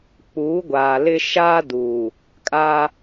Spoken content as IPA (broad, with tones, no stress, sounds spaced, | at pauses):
k͡p uː˨˦ ɡʷ aː˨ l ɪ˦ ʃ aː˦ d uː˨ | kʼ aː˦